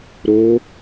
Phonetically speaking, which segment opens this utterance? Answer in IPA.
ɾ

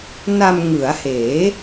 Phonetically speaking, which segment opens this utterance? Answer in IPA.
n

